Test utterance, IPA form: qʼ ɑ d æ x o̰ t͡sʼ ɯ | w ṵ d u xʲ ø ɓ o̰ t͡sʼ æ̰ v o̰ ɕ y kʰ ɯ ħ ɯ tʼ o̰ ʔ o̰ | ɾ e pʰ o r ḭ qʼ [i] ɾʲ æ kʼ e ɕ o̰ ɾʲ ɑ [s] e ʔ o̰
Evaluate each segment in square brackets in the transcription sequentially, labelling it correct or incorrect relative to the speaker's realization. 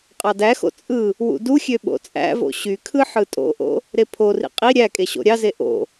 correct, incorrect: z

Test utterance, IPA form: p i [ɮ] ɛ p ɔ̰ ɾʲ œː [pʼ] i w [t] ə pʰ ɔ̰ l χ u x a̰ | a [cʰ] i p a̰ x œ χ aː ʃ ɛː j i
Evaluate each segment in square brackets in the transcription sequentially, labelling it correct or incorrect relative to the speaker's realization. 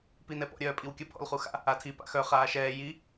incorrect: n, correct, incorrect: kʲ, incorrect: tʰ

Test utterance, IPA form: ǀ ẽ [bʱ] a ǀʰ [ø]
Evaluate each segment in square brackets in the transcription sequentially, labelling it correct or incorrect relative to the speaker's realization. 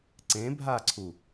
correct, incorrect: u

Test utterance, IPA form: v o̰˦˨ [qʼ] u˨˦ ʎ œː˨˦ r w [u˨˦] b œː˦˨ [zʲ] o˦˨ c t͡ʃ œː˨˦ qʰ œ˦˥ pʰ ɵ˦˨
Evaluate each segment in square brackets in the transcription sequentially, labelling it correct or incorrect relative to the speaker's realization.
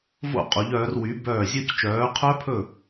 correct, incorrect: y˨˦, correct

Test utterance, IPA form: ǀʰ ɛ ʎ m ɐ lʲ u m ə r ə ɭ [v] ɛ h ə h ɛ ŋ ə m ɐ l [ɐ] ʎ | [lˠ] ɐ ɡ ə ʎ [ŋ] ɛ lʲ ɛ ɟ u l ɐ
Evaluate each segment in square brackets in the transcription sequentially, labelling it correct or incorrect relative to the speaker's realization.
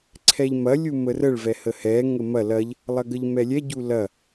correct, correct, correct, incorrect: m

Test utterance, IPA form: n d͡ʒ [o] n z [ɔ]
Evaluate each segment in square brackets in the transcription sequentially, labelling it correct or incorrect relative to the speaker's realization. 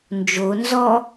correct, correct

